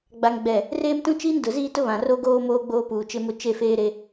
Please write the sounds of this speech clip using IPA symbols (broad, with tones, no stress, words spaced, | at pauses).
ɡ͡ba˨ŋɡ͡bɛ˨ | reː˦mtũ˦ t͡ʃiː˦ndʊ˨ziː˦ tʊ˦βã˨ro˦ ɡoː˦moː˦ ɡ͡boː˦puː˨t͡ʃɪ˦mʊ˦ t͡ʃe˦˨feː˦ɾe˦